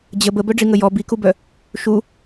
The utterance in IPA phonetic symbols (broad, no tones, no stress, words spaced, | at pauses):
d͡ʑə bəbœɖ͡ʐiŋə jɔ bikubœ | ʃu